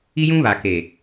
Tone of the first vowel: high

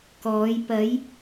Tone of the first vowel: rising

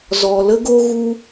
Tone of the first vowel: low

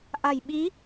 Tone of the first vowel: low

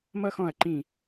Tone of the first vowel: high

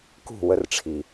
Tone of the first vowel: falling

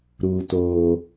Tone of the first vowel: low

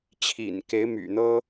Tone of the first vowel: low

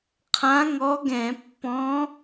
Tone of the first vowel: rising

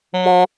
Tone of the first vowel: high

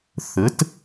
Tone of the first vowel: rising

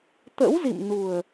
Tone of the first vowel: rising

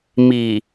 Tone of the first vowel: low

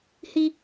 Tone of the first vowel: high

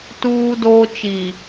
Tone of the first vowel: high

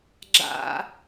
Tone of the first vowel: high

